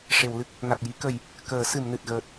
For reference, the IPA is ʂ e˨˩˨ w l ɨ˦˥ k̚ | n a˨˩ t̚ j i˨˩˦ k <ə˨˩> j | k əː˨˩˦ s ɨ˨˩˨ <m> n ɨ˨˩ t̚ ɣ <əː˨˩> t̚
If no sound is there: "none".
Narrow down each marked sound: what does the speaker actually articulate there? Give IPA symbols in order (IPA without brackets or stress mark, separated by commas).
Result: ə˨˩˨, m, əː˨˩